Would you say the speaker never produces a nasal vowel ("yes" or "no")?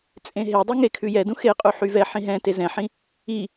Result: no